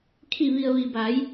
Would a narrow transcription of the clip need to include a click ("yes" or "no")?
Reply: no